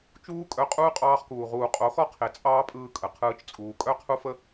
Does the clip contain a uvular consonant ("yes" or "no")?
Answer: yes